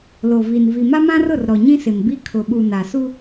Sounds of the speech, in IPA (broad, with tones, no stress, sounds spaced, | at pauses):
l o˨ v i˨ n v i˨ m a˦ m ã˦ r ʊ˦˨ r ɾ ɔ˨ ɲ ĩ˦ s ɪ˨ m b i˦ kʰ ʊ˨ ɓ u˨ n a˨ s u˦